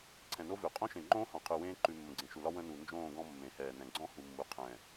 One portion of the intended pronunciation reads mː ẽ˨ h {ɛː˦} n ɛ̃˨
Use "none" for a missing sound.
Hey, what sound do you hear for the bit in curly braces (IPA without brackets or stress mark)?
ɛː˨